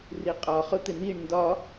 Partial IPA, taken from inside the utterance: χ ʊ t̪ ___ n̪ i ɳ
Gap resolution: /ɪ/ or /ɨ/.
ɪ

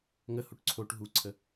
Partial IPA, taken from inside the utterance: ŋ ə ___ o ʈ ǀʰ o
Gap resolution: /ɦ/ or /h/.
h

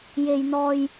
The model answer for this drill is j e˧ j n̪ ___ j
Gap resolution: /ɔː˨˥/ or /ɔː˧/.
ɔː˧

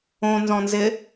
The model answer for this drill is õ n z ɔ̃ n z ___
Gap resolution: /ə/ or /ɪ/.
ɪ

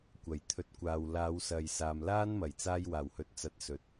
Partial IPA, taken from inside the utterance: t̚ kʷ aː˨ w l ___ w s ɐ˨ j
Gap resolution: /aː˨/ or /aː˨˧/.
aː˨˧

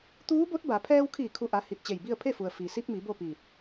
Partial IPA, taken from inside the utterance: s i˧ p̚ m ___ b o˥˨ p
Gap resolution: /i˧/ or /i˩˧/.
i˩˧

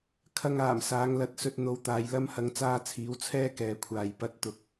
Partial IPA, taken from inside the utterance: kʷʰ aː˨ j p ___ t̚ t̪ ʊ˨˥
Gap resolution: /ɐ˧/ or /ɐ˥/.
ɐ˧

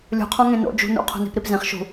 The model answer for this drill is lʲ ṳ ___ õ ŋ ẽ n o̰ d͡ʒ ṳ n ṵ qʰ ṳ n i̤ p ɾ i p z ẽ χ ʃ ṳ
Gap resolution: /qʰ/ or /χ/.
qʰ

